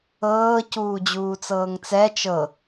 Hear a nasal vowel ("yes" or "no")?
no